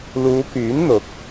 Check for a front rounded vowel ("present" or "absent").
present